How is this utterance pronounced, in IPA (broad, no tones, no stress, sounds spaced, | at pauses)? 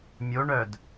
mʲ o ɳ œ d